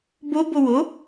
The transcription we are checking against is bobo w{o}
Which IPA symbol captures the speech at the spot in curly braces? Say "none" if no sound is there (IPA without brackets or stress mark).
o